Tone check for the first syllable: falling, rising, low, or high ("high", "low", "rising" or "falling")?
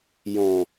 low